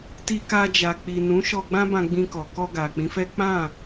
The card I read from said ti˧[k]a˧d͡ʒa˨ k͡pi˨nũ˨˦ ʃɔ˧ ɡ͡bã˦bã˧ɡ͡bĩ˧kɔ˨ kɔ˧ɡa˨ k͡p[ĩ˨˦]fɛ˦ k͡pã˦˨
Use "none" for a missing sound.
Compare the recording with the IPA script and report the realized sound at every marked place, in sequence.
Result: k, ĩ˨˦

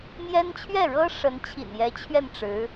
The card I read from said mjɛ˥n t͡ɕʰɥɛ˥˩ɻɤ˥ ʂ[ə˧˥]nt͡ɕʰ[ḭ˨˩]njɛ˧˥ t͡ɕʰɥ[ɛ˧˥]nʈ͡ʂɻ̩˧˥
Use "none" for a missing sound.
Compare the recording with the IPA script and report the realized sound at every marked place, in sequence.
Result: ə˧˥, ḭ˨˩, ɛ˥˩

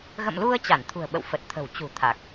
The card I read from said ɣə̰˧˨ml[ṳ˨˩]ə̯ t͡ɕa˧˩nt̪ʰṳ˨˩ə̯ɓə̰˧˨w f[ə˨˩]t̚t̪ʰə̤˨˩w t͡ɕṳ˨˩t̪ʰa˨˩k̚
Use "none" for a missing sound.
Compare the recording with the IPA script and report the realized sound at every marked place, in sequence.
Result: u˧, ə˨˩

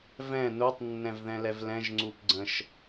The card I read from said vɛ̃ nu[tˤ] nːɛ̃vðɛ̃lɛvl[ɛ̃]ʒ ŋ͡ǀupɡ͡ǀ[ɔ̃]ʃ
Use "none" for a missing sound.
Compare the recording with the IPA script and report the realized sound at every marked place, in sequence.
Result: tˤ, ɛ̃, ə̃

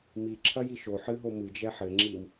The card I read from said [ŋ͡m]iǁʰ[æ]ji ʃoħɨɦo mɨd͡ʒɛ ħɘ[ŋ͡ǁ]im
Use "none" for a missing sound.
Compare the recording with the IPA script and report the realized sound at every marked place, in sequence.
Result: m, ɐ, ŋ͡ǁ

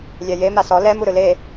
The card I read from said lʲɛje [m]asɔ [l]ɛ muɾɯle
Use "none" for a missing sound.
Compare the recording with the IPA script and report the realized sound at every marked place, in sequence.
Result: m, l

